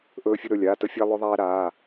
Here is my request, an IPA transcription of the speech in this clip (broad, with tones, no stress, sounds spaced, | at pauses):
ʔ ɵː˧ fʲ ɘ˧ ɾ ɵ˩˧˩ lʲ aː˩˧˩ t ə˧ fʲ æ˧ lˠ ɵ˧ ðˤ æː˧ ɾ aː˩˧˩